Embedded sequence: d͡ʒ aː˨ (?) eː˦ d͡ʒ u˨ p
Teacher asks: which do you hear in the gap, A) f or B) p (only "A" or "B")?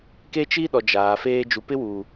A